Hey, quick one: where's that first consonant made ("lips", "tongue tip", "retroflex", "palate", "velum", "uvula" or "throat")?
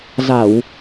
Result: tongue tip